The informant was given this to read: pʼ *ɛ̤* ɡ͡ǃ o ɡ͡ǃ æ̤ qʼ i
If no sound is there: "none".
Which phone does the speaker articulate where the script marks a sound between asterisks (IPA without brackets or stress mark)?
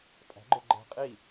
æ̤